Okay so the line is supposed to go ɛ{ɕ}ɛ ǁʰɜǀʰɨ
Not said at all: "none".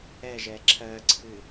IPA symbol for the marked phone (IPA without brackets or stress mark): ʒ